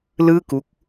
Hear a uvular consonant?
no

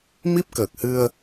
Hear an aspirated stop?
no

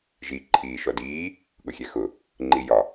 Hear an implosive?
yes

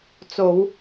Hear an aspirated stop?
no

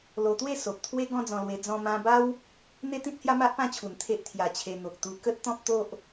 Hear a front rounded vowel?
no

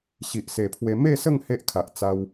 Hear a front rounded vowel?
no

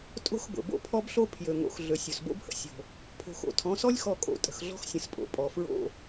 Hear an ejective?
yes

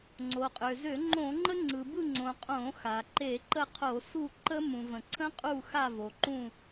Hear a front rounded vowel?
yes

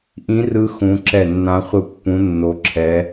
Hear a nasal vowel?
yes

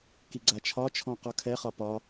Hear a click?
yes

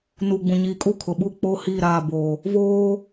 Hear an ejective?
yes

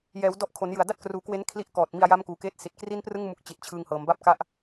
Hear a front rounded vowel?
no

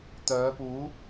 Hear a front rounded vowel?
yes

